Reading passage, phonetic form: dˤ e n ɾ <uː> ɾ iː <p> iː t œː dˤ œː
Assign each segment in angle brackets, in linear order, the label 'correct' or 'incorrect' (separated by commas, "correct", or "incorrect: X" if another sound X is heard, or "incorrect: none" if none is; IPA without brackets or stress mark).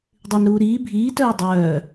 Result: correct, incorrect: bʱ